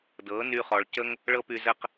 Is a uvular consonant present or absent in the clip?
present